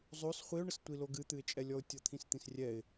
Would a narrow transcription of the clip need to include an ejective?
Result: yes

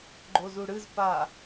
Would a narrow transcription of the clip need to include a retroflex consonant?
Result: yes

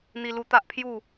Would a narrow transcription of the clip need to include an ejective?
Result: no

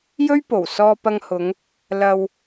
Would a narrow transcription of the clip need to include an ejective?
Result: no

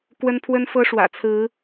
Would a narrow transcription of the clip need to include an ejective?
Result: no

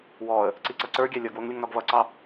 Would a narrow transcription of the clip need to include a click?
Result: yes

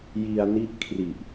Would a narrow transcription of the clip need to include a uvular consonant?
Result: no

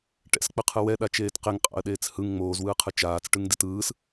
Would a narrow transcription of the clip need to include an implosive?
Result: yes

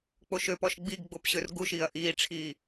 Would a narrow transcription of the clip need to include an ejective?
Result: no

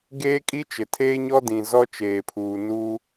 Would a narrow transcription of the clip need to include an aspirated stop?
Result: yes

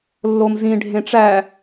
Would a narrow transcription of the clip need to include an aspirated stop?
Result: no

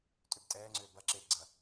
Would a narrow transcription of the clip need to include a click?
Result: yes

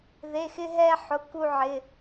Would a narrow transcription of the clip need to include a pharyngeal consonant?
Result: yes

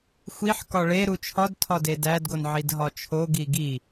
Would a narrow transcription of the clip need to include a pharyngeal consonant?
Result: yes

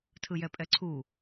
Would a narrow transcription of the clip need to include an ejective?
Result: yes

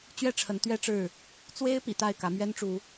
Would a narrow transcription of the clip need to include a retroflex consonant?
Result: yes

